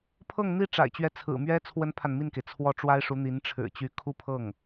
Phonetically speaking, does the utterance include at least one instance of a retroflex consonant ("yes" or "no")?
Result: yes